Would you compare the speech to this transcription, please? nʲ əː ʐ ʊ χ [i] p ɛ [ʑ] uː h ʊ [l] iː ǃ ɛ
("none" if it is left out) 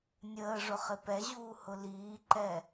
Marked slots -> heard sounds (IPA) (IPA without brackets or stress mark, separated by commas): ɪ, ʑ, l